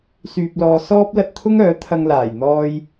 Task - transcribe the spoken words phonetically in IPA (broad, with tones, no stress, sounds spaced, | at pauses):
s yː˧ p̚ l ɔː˧ s ɔː˥ p̚ l ɐ˧ t̚ t̪ʰ ʊ˥ ŋ œː˨˥ t̪ʰ ɐ˧ ŋ l aː˨˩ j n̪ ɔː˧ j